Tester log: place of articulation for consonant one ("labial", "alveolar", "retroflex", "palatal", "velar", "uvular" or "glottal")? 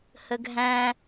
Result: glottal